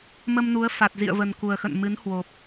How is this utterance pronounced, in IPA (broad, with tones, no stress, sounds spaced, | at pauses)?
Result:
m ə˧ m n u˨˦ ə̯ f a˨˩ t̚ z ḭ˧˨ ə̯ v ə˨˩ n k u˨˩ ə̯ x ə̰˧˨ n m ɨ˨˦ n h w o˨˩ p̚